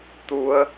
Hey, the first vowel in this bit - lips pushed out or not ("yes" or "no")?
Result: yes